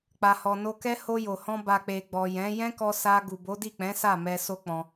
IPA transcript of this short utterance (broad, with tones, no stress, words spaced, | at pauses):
k͡pa˨hɔ˨no˧kɛ˦ ho˧jo˨hɔ̃˧ ba˨k͡pe˨ɡ͡bɔ˨ jɛ̃˨˦ jɛ̃˦kɔ˧sa˧ ɡu˨bo˨˦di˦˨k͡pɛ̃˨˦ sa˦˨mɛ˧ so˦k͡pɔ̃˧